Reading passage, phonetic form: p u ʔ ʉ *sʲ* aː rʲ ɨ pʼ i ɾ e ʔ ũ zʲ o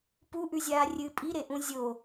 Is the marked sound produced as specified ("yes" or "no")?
no